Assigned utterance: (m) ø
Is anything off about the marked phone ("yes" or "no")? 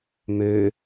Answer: no